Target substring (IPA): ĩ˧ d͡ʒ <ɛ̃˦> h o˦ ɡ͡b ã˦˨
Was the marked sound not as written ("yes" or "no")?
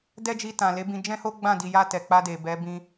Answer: no